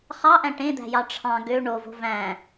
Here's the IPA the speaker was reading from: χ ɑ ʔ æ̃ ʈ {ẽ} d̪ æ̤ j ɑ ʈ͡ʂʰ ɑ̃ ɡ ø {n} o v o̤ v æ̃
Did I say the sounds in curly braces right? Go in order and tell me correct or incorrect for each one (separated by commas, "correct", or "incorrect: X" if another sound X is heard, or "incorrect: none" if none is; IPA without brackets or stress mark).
correct, incorrect: ɳ